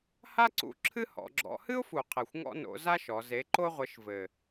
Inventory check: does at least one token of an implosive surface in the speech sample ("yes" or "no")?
no